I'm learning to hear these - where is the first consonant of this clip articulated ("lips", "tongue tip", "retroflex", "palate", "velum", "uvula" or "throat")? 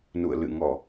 tongue tip